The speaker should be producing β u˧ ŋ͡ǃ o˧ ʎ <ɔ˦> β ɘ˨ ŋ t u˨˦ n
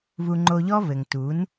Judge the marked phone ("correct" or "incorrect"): correct